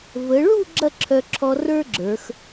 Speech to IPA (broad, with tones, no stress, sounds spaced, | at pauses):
v ə˩˧ ɭ u˥˧ ɡ͡ǁ ɐ˥˧ ǁʰ œ˧ ǁʰ ɔ˧ r ə˞˥ ɡ͡ǁ ə˞˩˧ x